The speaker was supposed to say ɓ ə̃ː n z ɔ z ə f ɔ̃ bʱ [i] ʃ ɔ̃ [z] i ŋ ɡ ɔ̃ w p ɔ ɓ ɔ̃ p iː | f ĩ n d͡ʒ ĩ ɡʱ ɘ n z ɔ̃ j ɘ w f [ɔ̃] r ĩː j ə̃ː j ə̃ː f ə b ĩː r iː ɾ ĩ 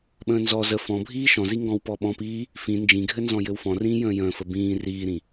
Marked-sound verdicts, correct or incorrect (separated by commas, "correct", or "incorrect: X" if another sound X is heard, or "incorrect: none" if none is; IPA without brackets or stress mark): incorrect: iː, correct, correct